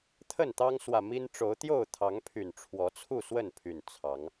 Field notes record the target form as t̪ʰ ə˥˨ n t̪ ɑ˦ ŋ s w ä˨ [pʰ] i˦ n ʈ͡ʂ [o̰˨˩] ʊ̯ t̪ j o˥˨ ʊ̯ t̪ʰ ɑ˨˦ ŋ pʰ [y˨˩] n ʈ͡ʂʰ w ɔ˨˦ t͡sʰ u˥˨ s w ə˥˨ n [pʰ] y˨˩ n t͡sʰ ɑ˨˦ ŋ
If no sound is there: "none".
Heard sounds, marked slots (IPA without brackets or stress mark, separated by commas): m, o˨˦, y˨˩, pʰ